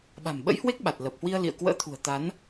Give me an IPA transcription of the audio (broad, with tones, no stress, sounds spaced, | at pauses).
ɓ a̤˨˩ m ɓ ə̰˧˥ j h w e˦˥ k̚ ɓ a˨˩ t̚ l ə˨˩ p̚ h w i˧ ə̯ l ḭ˧˨ ə̯ k w ə̰ː˧˥ t̪ʰ ṳ˨˩ ə̯ t̪ a˨˦ n